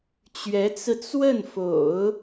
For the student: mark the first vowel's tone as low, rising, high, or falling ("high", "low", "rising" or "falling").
rising